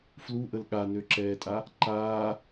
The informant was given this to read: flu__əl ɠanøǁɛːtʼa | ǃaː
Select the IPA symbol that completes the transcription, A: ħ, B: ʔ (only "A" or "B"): B